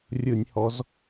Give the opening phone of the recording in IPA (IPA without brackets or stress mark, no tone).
rʲ